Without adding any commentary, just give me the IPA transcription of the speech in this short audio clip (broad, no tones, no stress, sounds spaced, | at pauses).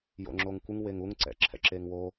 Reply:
j o̰ ŋ͡ǁ o ŋ kʷ ɯ ŋ w e ŋ u ŋ ǀ ɛ̰ ǁʰ ɛ̰ ǁ e ŋ w o